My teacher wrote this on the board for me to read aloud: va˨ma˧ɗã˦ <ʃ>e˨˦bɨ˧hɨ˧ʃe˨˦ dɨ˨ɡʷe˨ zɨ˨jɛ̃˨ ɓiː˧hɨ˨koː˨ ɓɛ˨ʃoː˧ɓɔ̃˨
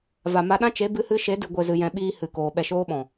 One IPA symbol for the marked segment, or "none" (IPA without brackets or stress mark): t͡ʃ